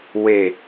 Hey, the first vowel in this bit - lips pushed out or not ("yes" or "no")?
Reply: no